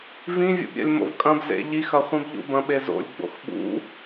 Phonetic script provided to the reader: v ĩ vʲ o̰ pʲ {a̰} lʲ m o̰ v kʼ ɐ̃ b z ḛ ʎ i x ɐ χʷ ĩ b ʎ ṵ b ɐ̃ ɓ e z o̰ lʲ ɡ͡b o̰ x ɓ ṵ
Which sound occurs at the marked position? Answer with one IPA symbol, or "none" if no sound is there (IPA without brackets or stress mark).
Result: a̰